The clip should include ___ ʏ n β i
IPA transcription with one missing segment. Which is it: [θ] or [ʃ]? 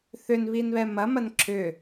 θ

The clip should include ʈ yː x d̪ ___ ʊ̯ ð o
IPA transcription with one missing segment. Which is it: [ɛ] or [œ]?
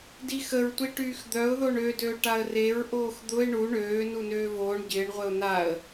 œ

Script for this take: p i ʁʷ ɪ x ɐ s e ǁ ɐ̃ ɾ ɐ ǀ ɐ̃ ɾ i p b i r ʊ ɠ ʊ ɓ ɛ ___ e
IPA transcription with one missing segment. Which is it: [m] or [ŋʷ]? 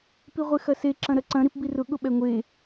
ŋʷ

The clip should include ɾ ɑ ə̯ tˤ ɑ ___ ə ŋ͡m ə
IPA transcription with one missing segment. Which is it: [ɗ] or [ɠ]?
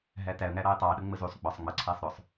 ɗ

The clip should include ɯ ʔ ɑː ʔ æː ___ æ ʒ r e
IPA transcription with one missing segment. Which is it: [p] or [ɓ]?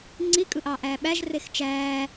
ɓ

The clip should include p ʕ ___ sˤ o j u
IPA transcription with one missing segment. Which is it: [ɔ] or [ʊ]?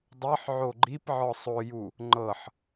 ɔ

